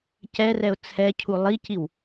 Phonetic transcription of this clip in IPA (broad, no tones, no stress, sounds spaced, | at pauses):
c ɛ r ɛ ʊ̯ t͡sʰ ɛ cʰ u lˠ i c i w